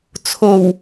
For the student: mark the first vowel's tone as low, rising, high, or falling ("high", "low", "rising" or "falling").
low